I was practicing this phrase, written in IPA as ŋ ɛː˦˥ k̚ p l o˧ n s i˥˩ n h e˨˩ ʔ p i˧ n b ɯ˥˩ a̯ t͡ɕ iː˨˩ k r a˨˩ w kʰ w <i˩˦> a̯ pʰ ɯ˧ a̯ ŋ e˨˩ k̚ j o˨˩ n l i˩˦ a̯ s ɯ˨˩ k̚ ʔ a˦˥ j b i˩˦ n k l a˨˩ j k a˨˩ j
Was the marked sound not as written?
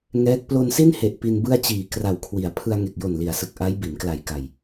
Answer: no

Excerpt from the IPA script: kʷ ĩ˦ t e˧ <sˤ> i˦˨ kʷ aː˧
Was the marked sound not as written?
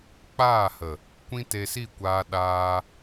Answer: yes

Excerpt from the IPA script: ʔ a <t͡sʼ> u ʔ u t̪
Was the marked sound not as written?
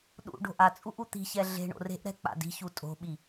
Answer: no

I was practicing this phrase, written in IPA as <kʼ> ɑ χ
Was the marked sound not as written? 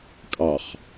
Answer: no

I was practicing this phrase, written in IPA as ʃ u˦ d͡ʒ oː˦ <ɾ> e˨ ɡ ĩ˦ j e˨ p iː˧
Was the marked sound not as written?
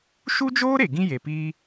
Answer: no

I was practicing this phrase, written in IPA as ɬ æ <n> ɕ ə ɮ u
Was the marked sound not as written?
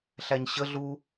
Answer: yes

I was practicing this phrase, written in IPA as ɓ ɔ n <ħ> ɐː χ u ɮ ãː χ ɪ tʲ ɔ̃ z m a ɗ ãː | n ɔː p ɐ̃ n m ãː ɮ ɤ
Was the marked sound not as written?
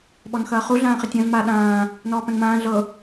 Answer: yes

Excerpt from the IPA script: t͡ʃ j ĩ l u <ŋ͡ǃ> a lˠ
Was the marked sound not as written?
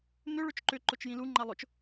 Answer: no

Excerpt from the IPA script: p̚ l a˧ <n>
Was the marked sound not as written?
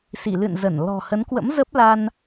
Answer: no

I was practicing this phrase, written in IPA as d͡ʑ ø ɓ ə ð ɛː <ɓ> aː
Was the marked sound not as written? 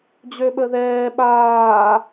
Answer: no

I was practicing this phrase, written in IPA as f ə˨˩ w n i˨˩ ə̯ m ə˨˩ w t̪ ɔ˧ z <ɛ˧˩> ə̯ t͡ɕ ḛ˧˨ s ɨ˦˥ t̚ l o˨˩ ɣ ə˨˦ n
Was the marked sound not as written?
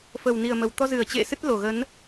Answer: yes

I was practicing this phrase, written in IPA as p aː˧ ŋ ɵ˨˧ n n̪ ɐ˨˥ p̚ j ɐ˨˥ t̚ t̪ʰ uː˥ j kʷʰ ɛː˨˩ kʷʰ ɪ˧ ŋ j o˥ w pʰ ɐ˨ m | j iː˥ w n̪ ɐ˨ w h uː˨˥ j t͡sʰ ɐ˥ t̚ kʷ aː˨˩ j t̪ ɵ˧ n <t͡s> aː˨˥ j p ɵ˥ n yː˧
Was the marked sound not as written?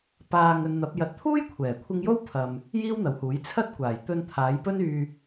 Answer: yes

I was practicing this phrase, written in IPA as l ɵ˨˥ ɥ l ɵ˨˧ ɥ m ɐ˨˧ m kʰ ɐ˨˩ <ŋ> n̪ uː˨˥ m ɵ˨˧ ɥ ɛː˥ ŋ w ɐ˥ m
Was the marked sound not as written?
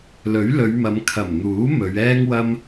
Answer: yes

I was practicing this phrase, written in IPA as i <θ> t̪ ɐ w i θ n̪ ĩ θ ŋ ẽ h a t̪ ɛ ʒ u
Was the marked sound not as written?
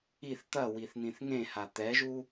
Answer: no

